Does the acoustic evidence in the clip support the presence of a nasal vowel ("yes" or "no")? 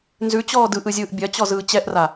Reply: no